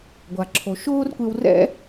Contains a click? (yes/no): yes